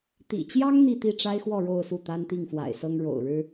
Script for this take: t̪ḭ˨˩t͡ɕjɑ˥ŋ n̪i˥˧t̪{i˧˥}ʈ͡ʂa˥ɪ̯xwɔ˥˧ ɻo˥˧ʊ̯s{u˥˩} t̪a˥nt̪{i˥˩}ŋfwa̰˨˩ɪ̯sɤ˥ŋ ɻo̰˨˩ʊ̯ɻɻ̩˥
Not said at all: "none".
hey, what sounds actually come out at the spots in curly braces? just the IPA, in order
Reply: i˥˩, u˥˩, i˥˩

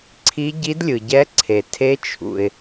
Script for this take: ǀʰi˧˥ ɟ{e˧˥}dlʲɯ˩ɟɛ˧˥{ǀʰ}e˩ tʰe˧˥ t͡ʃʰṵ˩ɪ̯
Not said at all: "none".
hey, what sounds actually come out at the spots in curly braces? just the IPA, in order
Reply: i˧˥, ǀʰ

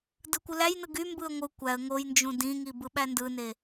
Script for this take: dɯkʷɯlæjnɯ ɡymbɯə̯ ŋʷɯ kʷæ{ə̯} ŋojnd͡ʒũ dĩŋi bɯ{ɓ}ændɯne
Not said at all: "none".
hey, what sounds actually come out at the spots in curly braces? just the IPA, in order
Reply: ə̯, ɓ

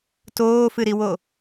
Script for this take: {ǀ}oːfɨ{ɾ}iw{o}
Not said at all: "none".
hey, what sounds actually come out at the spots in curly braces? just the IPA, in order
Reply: t, ɾ, o

